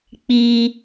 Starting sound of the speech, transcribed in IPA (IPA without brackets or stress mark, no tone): k͡p